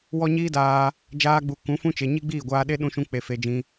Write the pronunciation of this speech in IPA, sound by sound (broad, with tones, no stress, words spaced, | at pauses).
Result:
wɔ˦ɲiː˦daː˧ | d͡ʒaː˧ɡ͡bu˨ kũ˨˦fũ˦t͡ʃe˨ ɲi˦ɡ͡biː˦˨ɡʷaː˧ɗe˦ ɗũ˧ʃũ˧ k͡pe˧fe˧d͡ʒĩ˧